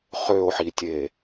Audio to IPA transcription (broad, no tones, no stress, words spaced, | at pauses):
χøo̯ħitʲe